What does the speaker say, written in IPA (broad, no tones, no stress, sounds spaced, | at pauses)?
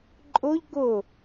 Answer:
ǃʼ ʊ ʎ ɡ ʊ